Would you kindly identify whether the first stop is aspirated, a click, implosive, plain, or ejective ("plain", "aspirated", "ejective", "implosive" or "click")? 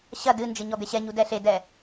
plain